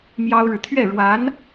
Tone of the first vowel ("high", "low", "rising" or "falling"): high